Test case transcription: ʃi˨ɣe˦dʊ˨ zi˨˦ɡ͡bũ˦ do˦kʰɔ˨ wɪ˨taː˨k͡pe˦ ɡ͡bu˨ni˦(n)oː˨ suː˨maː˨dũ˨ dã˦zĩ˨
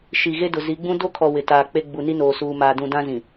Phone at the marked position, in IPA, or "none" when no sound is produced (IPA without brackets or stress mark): n